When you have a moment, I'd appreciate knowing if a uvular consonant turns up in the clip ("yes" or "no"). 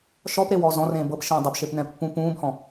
no